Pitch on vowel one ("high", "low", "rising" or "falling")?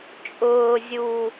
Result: low